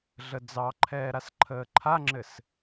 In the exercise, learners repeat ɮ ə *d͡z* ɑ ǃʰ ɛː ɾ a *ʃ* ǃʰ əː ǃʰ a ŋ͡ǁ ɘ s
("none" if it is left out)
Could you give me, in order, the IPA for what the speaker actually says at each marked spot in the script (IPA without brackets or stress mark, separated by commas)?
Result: d͡z, s